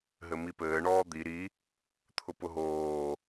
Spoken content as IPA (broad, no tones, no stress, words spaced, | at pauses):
ɦɘmipɘː ɳɔːd̪i ɾi | t̪ʰʊpʊɦoː